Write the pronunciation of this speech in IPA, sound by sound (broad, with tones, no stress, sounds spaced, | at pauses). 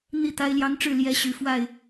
n̪ i˥˨ t̪ a˦ ɪ̯ l j ɑ˦ ŋ ʈ͡ʂ ɻ̩˥˨ l j ɛ˦ ɕ y˨˦ f w a˥˨ ɪ̯